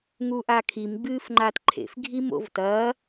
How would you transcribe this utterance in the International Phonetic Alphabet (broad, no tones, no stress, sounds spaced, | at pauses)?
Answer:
ŋ u ʔ a kʰ i m ɡ͡b ɨː f ŋ͡ǃ a t ǃʰ ḛ f ɡʱ i m o̰ v t ɐː